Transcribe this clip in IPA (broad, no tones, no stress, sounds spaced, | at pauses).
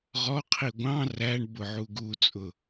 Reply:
ʁ ɔ qʰ i ɡʷ ɑ̃ r æ ɳ b ʊ ʕ u ɡ u t͡sʼ ʊ